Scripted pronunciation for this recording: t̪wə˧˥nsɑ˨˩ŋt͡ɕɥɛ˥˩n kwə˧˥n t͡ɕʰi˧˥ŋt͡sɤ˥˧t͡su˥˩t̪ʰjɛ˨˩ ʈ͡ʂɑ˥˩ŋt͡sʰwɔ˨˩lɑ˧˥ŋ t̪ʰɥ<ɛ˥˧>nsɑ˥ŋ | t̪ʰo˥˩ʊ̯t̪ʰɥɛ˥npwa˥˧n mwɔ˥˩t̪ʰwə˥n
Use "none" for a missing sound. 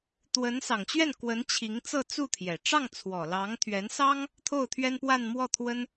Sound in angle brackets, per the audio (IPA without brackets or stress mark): ɛ˧˥